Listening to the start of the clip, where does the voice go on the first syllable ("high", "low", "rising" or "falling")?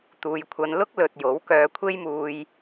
low